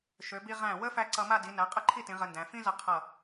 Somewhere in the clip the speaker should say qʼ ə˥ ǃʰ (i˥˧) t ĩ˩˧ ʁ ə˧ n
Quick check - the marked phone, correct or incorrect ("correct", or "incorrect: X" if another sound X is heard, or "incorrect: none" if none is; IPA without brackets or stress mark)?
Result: correct